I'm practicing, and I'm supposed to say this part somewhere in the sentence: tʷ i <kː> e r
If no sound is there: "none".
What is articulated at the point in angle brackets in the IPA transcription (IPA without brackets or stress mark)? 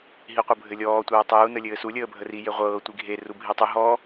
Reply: ɡʱ